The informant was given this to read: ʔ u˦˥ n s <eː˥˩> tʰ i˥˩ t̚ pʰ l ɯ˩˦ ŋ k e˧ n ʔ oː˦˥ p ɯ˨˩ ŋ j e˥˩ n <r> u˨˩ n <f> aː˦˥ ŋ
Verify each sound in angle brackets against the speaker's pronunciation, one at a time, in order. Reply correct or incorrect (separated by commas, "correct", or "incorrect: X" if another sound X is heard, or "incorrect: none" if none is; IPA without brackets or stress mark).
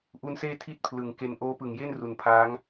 correct, correct, incorrect: pʰ